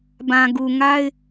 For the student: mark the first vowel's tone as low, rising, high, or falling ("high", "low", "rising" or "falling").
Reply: low